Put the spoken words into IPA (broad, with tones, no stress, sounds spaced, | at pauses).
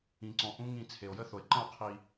ĩ˨ ǀ ɔ̃˨ ʔ ũ˦ ŋ ĩ˨ t͡sʰ e˨ o̯ j ə˦ θ o˨ e̯ ǃ ə̃˦˨ o̯ qʰ i˨